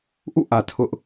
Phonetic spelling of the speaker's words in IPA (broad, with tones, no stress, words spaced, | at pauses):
ʔṵ˦˨ʔä˨ tʰʊ˦ʔ